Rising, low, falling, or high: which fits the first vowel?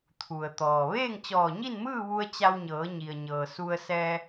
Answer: low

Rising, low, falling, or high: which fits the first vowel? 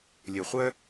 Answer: low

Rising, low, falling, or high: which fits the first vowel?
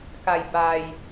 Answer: low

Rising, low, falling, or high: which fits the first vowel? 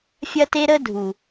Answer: high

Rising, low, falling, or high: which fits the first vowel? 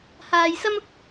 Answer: low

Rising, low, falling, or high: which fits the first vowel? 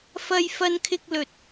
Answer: high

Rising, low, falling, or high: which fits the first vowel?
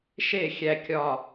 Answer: falling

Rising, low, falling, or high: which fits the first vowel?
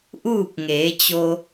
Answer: falling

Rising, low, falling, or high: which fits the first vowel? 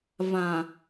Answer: low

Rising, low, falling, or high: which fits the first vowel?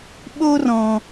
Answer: high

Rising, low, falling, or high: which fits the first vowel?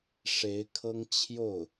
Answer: rising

